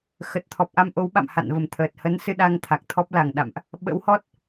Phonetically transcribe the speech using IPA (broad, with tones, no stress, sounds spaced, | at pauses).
x ə˨˩ t̚ t̪ʰ ɔ˨˩ p̚ ʔ a˧ m ʔ o˨˦ w ɓ a̰˧˨ m h a̰˧˨ n v ə˨˩ m t̪ʰ əː˨˩ t̚ h ə˨˦ n s ɨ˧ ɗ a˧ ŋ t̪ʰ a˨˩ k̚ t̪ʰ ɔ˦˥ p̚ l a˨˩ ŋ ɗ a̰˧˨ m ʔ | ɓ ə̰˧˥ w h ɔ˦˥ t̚